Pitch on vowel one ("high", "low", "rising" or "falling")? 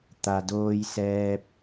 low